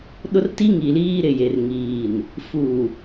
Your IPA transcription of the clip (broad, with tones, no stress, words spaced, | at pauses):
ɗʊ˦rti˦ ŋi˨liː˦ɾɪ˨je˨r ŋiː˨n | fuː˨